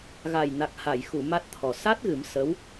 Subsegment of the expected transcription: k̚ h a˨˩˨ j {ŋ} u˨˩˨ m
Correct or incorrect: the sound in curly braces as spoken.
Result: incorrect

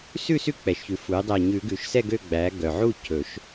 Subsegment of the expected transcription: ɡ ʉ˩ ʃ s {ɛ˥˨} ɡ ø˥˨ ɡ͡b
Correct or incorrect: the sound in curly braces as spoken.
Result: correct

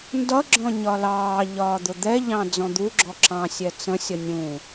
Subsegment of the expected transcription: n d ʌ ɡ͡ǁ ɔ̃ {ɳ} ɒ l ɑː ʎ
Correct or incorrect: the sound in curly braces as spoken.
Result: incorrect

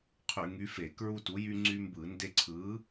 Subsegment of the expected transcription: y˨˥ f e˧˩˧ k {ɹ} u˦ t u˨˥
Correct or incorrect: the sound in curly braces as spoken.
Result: correct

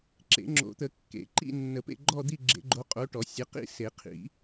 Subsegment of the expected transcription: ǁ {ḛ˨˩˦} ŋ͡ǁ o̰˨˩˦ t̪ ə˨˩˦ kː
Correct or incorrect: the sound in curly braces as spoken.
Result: correct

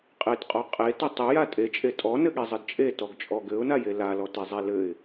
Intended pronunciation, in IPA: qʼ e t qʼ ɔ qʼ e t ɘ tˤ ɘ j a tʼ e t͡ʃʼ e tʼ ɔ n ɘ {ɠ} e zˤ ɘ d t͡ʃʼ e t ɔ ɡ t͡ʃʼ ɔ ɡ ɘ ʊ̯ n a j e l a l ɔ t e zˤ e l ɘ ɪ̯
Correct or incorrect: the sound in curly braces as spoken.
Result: correct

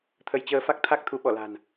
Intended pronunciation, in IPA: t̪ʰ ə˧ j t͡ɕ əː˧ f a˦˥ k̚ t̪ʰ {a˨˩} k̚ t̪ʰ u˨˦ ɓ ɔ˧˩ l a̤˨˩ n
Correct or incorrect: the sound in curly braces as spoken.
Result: incorrect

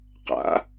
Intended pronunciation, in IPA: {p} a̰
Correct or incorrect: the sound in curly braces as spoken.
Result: incorrect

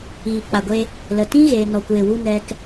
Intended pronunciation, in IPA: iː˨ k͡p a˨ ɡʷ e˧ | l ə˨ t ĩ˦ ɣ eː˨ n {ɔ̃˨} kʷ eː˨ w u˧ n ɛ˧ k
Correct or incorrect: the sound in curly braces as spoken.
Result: incorrect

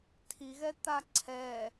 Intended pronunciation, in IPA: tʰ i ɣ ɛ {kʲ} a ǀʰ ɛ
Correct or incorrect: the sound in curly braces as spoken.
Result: incorrect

